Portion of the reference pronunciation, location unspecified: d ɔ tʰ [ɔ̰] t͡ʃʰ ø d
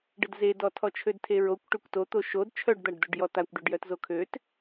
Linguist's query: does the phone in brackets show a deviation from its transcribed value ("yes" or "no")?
yes